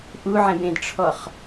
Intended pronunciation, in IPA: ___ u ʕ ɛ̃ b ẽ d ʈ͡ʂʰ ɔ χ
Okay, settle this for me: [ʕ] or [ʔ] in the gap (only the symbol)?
ʔ